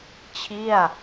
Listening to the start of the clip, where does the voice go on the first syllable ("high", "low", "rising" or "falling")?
falling